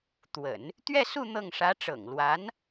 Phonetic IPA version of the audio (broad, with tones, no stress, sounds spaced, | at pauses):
t̪ w ə̰˨˩˦ n | t̪ ɥ ɛ˥˧ s u˥˧ n̪ ɤ˥˩ ŋ ʂ ä˧˥ ʈ͡ʂ ɤ̰˨˩ ŋ l w a˧˥ n